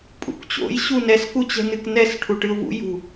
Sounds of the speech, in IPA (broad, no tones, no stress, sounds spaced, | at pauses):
pʼ ṵ k t͡ɕ o̰ j ɕ u n ɛ s k u t͡ɕ ɛ̤ n ɨ k n ɛ s ʈʰ u ʈ ɨ ʊ̯ v ṵ j ṳ